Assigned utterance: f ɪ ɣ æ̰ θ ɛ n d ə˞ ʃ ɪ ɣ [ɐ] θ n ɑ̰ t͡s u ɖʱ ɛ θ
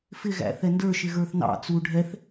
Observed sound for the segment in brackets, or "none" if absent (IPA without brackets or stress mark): ə˞